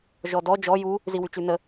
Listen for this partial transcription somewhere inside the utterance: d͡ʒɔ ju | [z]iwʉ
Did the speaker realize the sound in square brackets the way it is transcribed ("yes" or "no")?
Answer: yes